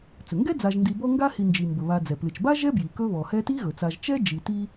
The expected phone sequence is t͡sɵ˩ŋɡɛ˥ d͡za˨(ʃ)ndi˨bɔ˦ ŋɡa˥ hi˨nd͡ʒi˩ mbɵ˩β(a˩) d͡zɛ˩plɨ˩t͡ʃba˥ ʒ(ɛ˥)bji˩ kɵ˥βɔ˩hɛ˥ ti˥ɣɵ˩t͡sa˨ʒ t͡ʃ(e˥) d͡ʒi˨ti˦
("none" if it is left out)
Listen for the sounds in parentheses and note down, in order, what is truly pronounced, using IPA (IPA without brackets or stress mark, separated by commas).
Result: ʒ, a˨, ɛ˥, ɛ˥